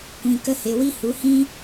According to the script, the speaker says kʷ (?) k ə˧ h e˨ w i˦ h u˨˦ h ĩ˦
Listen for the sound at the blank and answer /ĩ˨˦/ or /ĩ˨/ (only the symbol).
ĩ˨